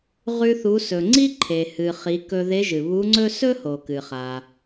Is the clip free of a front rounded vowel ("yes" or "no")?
yes